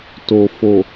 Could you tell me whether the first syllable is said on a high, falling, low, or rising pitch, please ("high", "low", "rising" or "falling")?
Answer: low